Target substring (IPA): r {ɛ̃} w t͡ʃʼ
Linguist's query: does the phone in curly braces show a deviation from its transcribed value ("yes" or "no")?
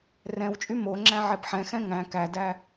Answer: no